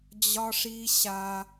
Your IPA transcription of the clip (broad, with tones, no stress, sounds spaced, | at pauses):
d͡ʑ ɒ˦ ʂ i˦ ɕ a˦